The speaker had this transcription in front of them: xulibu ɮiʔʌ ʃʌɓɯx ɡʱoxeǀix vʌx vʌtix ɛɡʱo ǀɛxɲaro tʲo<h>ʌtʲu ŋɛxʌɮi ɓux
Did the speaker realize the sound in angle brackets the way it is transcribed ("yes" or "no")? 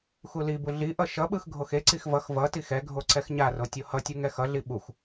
yes